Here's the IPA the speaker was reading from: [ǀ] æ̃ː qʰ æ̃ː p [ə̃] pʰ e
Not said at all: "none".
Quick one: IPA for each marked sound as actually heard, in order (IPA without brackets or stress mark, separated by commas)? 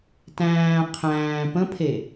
t, ə̃